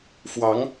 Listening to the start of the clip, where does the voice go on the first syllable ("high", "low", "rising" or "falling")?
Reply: rising